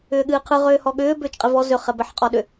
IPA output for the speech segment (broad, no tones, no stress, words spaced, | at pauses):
ʏːɠɨːqʰɯ ʁʏːhɔɠʏː bʏːt͡ʃqʼɪvɔ zʏ χɛbɛħqʼɔɗʏ